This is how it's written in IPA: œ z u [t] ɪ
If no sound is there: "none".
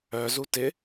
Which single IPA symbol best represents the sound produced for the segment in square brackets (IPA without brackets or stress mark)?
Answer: t